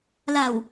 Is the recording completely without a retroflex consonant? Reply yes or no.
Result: yes